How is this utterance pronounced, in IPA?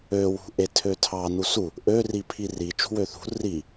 ø w ṳ ʔ e tʰ ø tʰ ɑ n u s u | ʔ ø r i pʰ i r i t͡ʃ ṳ w ø θ ṳ r i

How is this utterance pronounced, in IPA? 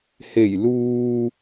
h e˨˩ j l uː˨

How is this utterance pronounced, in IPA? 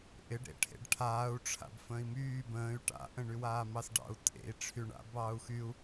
ʔ ɪ ɖ ɾ ḛ ʈʰ ḛ ɖ ʈʰ aː u̯ ʈ͡ʂʰ a̰ b f ə̃ː i̯ m yː b ə̃ː y̯ ʈ a̰ ʔ ə̃ ɳ y w aː m ɑ s ɖ ɑ̰ u̯ tʼ ḛ i̯ ʈ͡ʂʰ y ɳ a̰ b ɑː u̯ x y u̯

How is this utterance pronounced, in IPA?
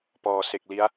p ɔː˩˦ s e˨˩ k̚ l i˦˥ a̯

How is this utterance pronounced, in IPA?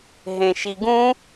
ɦ ẽ ʃ i ɡ ũ

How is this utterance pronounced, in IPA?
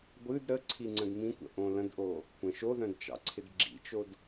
ɡʷ ɨ d ɾ ə ǀʰ i ŋ͡ǀ ə̃ d m ĩ kʷ ə̰ ʔ õ l ə̃ d ʔ o | kʷ ə̃ ʃ o ð œ̃ d t͡ʃ ɑ̰ ǀʰ ɪ d ɡ͡ǁ ḭ t͡ʃ o d

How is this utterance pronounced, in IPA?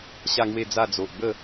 ɕ a˥˧ ŋ w e˥˧ d͡z a˥˧ d͡z o˨ ʔ b ə˥˧

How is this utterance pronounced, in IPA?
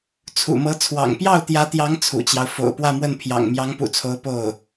t͡sʰ ṵ˨˩ m ɤ˧˥ t͡sʰ w ɑ̰˨˩ ŋ p j ɑ˥˩ ʊ̯ t̪ j ä˧˥ t̪ j ɑ˧˥ ŋ t͡sʰ ṵ˨˩ t͡ɕ j ɑ˦ ʊ̯ f o̰˨˩ ʊ̯ p w ä˥˧ m w ə˥˩ n pʰ j ɑ̰˨˩ ŋ m j ɑ˧˥ ŋ p ṵ˨˩ t͡sʰ o˧˥ ʊ̯ p o˥˩ ʊ̯

